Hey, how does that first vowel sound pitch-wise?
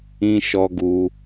high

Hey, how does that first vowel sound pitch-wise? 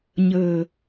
low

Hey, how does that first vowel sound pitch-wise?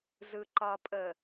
low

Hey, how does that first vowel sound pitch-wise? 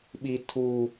high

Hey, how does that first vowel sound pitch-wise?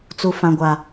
low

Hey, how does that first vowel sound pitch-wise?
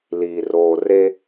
low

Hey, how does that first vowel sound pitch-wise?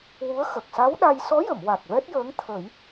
rising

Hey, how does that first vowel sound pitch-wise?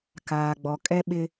low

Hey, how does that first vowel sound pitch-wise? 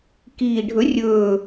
low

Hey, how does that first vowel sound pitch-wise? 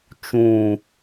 low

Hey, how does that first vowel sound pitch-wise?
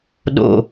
low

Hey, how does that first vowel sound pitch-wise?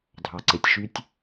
low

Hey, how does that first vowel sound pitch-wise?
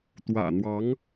low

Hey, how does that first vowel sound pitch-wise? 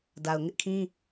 low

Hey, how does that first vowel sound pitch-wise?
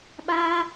high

